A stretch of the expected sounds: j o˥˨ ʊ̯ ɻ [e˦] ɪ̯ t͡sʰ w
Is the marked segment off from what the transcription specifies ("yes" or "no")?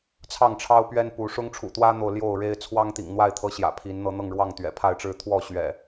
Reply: no